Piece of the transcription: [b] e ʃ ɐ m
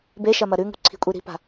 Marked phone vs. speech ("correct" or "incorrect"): correct